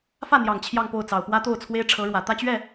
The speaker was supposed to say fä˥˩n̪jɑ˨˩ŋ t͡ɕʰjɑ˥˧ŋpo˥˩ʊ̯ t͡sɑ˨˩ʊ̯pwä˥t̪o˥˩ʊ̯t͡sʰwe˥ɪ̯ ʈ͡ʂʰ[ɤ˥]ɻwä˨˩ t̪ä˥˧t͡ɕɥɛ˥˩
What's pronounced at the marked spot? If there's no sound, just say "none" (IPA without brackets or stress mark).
ɤ˧˥